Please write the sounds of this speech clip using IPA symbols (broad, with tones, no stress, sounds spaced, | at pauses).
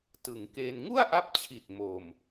t ɯ˩˦ ŋ k eː˧ n ŋ u˥˩ a̯ ʔ a˦˥ p̚ t͡ɕʰ i˨˩ t̚ m o˨˩ m